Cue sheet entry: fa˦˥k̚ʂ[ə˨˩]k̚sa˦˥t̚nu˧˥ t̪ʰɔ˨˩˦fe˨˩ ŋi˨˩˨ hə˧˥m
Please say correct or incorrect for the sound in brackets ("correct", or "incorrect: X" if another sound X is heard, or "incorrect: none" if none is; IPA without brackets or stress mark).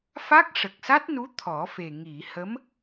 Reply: correct